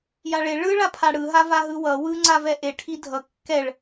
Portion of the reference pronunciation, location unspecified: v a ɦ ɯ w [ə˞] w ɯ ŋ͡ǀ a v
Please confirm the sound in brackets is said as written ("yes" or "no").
no